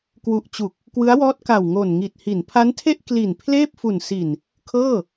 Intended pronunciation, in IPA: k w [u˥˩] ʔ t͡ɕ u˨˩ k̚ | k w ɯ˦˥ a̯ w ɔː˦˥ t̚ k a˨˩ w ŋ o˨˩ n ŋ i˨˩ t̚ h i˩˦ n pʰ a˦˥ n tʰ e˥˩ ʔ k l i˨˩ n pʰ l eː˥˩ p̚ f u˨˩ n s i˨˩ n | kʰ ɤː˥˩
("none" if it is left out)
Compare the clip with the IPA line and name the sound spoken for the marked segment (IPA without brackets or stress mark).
u˨˩